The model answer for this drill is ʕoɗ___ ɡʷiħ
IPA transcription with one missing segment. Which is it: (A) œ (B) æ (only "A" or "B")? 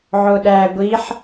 B